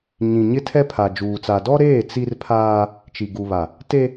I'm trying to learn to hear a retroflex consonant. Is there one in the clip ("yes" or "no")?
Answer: no